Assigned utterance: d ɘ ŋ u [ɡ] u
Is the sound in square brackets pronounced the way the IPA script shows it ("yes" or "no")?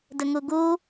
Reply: yes